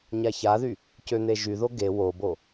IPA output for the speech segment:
ɲ a ç a ð y | c ø n̪ e ʒ y ð o ɡ e w o b o

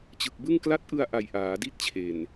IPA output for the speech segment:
t͡ɕ ɯ˨˩ k̚ b ɯ˥˩ ŋ k l a˦˥ t̚ ʔ ɯ˧ a̯ ʔ a˨˩ j ʔ aː˩˦ d i˥˩ t̚ t͡ɕʰ e˨˩ n

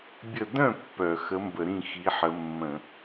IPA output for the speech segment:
bʲ ə˥˩ d œ̃˥˩ pː œ˧˩˧ x ə˨˥ m b ə˧˩˧ ɾ ĩ˥˩ x i˨˥ ħ ə˨˥ mː ə̃˧˩˧

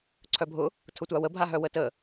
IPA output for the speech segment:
ǀʰ œ bʱ ʊ | tʰ ʊ tʷ a w ə bʱ a ɦ œ w ə t ə

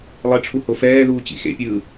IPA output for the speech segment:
lˠ e ʈ͡ʂʰ u h o f ɛː ð uː t͡ɕ ḭ x ḛ pʲ ɯː

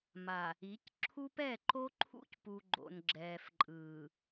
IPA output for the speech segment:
m a˨ | i˨˦ c ǁʰ u˦ p ɛ˦˨ ǃ o˦ ǃʰ ṵ˦ c p u˨ ɡ͡ǃ o̰˨ n ɡ͡ǁ ɛː˨ f ǃʼ ɯː˨

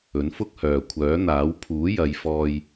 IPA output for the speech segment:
ɵ˨˥ n f ʊ˥ k̚ h œː˨ kʷʰ œː˨˥ n̪ aː˨˥ w pʰ uː˨˥ j ɐ˨˧ j f ɔː˥ j

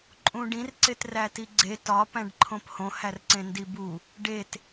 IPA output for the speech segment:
ǃʼ ũ ɖ ĩ r ǀ e t r æ t i ɡ͡ǀ e t ɒ p æ̃ ɖ ǃʰ õ p h õ h æ r ǀ ẽ n d i b u | ɖ e t

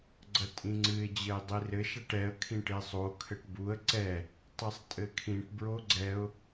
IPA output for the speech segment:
ɡ͡ǀ ɐ tʼ ĩ ŋ͡ǀ ɨ ɪ̯ d͡ʑ ɘ ɪ̯ dˤ i r ɘ ʃ a ʈ ɛ ə̯ kʰ ĩ ʈ e sˤ o kʰ ɘ ʈ b u ə̯ ǀ ɛ | tˤ e sˤ tʼ ɘ kʰ ĩ ʈ b ɹ o ɡ͡ǀ ɛ ʊ̯

